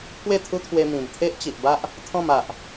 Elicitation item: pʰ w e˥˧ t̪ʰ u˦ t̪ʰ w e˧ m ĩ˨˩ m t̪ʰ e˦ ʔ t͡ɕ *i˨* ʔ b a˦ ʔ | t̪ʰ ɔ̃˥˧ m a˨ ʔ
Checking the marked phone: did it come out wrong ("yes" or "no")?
no